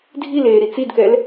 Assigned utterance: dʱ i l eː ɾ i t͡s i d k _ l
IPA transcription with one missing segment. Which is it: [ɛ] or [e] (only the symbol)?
ɛ